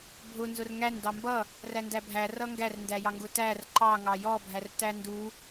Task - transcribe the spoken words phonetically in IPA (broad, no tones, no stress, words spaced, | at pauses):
bʱʊ nzʊrŋæn dɑmbʌ | rændæbʱæ rʌŋɡær ndæjɑŋɡʊtær ǃɑ ŋɑjɔ bʱærtændu